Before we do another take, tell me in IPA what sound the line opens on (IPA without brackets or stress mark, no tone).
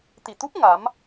t̪